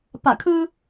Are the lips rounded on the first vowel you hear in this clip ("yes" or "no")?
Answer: no